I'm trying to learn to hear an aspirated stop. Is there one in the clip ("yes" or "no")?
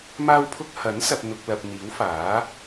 yes